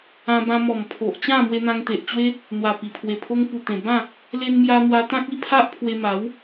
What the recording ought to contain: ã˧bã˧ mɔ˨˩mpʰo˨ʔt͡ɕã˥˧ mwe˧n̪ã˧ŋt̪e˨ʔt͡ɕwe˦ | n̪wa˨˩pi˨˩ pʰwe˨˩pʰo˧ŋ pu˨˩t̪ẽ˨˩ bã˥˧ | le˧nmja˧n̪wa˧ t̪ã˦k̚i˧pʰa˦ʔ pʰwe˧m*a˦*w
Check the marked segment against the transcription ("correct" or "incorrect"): incorrect